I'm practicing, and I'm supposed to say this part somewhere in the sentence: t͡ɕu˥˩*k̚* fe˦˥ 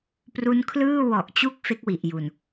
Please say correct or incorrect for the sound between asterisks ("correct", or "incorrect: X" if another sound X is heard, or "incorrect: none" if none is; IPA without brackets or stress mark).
correct